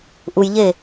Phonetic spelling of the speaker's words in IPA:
ʔujʎe

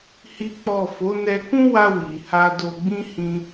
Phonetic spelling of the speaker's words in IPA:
hi˦k͡pɔ˦˨ fo˨˦nɛ˧kũ˦wa˧ wi˨ha˧do˧ɡ͡bĩ˦ hĩ˦

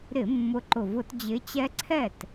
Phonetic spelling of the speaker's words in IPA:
ɾɪ˧˩˧ mːʊ˨˦ǃʊ˨˩ vʊ˧˩˧td͡ʑɪ˨˦ t͡ɕɛ˦ǀʰɛ˥˩t

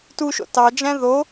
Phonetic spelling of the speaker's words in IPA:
tuʃo̰ tɑd͡ʒæ̃ ðo

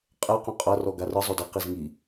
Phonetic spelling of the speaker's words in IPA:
qʼɛqõ qʼʌrɔ ɡarɯ zˤodʌ qizŋi

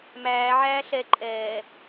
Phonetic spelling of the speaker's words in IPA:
mæː ʕæːɬɛ ǃʼɛː

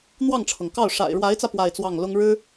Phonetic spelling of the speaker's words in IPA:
n̪wɑ˥˩ŋʈ͡ʂʰɤ˩ŋkɑ˥˩ʊ̯ ʂa̰˨˩ɪ̯ɻwa˧˥ɪ̯t͡sä˧ pwa˥˧ɪ̯t͡swɑ˥˩ŋ lʊ˥ŋɻɻ̩˥

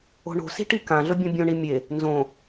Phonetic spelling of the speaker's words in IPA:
o̤ɳo̤si̤ ʈikãɮɵ bʲõbʲõɳi mʲe | nzõ

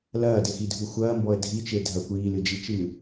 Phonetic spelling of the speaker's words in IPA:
lɐːdɘxidʱu xʷɐːmbɔə̯ dʱit͡ʃe dʱɐkʷ iːlɨd͡ʒit͡ʃɨː

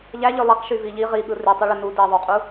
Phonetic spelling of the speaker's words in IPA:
ʎæʎø lˠiq ʃyviʎi ʁiɠɯ rytˤuɭø nu di ðˤyqʼu

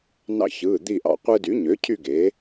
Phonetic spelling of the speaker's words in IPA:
nɑ̰˦˨çɯː˩˧˩d̪i˦˨ʔɑ̰˦˨ qʷɯ˥ dy˩˥ɲø˩˥cʰy˦˨ ɡe˩˥

